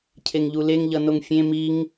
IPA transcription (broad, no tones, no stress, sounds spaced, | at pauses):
cʰ e ŋ ʎ u l e ŋ ʎ ʌ n o ŋ fʲ ẽ m i ŋ